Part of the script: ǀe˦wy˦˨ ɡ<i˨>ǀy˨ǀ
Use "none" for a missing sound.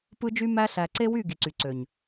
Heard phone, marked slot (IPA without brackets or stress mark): i˨